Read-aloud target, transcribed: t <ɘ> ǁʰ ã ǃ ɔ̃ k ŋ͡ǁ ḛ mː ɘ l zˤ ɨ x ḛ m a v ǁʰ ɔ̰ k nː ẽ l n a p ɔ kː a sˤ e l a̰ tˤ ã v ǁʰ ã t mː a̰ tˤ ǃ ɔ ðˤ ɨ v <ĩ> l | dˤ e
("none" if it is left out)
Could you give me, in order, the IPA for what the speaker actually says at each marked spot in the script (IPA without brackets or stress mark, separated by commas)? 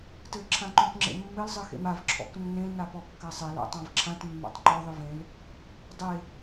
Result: ɘ, ẽ